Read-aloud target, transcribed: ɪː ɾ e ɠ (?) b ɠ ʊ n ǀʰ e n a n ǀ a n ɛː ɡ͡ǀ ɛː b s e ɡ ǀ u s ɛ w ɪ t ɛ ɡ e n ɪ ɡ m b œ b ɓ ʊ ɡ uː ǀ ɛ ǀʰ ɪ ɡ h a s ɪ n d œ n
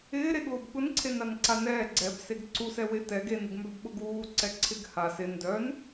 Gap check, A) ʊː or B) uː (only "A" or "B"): A